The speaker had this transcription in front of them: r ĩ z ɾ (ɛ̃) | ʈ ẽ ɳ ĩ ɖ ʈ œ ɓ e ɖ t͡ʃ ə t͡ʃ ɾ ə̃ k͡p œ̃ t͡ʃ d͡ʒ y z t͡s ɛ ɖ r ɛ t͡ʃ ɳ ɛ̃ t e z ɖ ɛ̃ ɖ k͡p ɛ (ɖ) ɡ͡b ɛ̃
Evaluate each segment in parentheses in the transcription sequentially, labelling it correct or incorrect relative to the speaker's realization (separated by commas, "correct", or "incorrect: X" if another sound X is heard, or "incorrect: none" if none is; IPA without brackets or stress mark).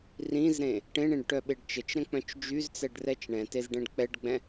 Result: incorrect: ẽ, correct